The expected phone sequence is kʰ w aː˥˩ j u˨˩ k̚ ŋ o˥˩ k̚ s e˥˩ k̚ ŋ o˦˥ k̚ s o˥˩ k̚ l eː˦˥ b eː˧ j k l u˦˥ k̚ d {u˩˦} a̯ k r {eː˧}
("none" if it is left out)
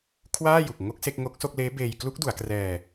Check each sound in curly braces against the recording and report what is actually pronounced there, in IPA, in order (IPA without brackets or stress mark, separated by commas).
u˩˦, ɛː˧